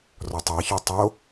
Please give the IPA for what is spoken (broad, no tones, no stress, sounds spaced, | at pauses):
r ɔ tˤ ɑ ç œ tˤ o